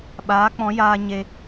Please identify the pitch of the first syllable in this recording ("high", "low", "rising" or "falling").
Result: rising